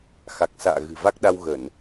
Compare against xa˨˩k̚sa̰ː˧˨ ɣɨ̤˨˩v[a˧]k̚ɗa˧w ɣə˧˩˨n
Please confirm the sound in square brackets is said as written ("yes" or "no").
no